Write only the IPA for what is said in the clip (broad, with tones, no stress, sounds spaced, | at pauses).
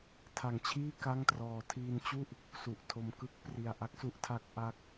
tʰ a˨˩ ŋ t͡ɕʰ iː˥˩ k a˥˩ ŋ t r ɔː˧ tʰ iː˧ n t͡ɕ u˥˩ ʔ | s u˨˩ ʔ tʰ o˧ m k ɯ˥˩ k̚ p r i˧ a̯ ʔ a˦˥ k̚ s u˦˥ ʔ tʰ a˦˥ k̚ ʔ a˥˩ k̚